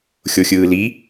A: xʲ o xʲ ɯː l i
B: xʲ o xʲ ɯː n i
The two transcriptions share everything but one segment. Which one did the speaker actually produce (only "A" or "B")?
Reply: A